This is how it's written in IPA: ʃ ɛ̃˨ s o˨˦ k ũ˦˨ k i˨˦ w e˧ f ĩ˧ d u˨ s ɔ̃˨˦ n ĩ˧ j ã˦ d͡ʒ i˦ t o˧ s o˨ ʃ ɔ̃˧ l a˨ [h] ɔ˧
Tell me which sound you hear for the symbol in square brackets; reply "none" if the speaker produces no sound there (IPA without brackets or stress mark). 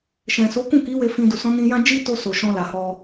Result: h